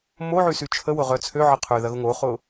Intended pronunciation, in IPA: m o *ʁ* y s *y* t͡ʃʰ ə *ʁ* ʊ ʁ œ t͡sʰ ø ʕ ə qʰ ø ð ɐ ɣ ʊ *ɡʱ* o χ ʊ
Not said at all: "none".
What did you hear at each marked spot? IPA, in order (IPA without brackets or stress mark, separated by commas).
ʕ, y, w, ŋ